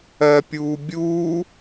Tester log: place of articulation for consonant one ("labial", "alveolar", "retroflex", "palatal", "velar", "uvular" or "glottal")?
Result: labial